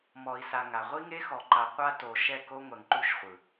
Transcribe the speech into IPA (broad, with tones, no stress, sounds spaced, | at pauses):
m ɔ˨ i̯ s a˨ ŋ a˨ ʁʷ i˦ ŋ e˦ x ɔ˨ ǃ a˨ qʷ a˦ t o˨ ʃ ɛ˦˨ k o˦ ŋʷ ɛ˨ ŋ ǃ u˦˨ ʃ χʷ ɯ˨